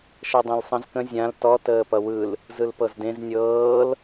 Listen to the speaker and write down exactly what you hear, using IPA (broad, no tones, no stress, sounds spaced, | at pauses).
ʃ ɤ dˤ ẽ l sˤ ə̃ z k ə̃ zʲ ã l t ɔ t əː p ʌ w ɯ l | z ɯ l p ɤ z d ẽ z nʲ ɤː l